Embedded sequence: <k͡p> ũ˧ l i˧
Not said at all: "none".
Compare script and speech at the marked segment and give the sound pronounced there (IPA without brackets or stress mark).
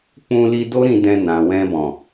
k͡p